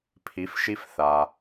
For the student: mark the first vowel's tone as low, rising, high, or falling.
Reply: rising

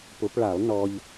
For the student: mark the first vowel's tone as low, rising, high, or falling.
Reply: rising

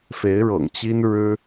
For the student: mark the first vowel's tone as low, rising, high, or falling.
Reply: rising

